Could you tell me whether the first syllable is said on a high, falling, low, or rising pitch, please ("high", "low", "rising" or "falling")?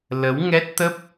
rising